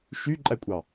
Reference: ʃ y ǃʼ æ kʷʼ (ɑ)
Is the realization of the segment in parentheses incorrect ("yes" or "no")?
no